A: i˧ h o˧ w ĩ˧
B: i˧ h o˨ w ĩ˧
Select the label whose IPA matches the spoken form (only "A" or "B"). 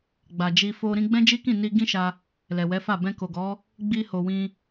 B